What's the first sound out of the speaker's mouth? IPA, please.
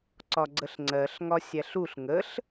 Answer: ǀ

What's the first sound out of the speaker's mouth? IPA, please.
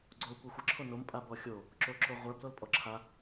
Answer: ɡ͡ǀ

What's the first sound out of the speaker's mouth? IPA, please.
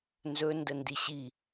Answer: n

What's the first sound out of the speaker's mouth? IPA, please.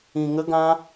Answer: ĩ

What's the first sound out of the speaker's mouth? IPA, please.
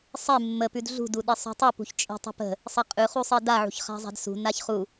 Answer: sˤ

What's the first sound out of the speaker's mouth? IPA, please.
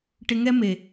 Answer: ʈ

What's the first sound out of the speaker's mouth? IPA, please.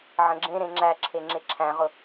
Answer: ʕ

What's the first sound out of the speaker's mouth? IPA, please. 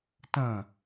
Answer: t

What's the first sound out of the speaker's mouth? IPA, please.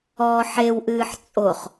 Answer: ɔː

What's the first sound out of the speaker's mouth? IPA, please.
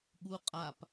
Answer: ɠ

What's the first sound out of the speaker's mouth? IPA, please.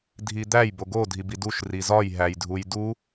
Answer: dʱ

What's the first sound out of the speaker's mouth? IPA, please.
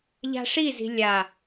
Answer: ʎ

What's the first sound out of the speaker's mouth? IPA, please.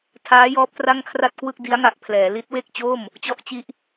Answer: tʰ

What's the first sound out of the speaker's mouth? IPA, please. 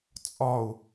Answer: t͡sʼ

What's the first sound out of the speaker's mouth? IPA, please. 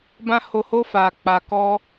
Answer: b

